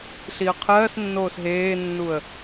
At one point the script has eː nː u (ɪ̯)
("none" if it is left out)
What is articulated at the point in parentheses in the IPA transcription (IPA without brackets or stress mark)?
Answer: ə̯